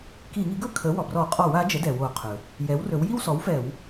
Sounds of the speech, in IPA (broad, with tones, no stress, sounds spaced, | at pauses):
k i˧˩˧ ŋ i˩˥ ɡ ɵ˥˧ kʰ ə˩˥ w ɔ˩ b r ɔ˧˩˧ qʼ ɔ˧˩˧ w a˩˥ d͡ʒ ə˩˥ d ɛ˩ w o˧˩˧ qʰ ɵ˩ | j ɛ˩˥ w r ɵ˩˥ w j i˥˧ w s ɔ˩˥ w f ɛ˧˩˧ w